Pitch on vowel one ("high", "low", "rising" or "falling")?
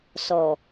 low